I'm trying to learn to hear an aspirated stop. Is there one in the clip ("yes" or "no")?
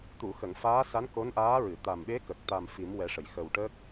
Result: no